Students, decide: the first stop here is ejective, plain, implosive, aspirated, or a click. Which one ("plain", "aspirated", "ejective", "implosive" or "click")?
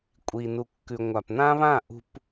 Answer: ejective